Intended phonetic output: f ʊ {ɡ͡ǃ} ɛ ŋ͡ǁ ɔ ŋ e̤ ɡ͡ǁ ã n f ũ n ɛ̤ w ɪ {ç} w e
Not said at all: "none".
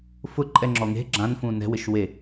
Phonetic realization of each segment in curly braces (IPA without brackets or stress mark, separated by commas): ǃʼ, ʃ